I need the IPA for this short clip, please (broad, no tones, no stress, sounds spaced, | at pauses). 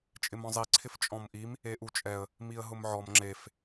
t͡ʃʼ ɪ m ɔ̃ zˤ i ǀʰ ɪ f t͡ʃʼ ɔ̃ m ʔ i m | e ʔ u t͡ʃʼ ɛ ə̯ | m i ə̯ ɦ ʊ m ʕ ɔ m ŋ͡ǁ e f